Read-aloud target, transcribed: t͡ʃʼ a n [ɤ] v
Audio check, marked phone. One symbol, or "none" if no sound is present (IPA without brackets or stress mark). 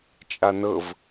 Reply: ɤ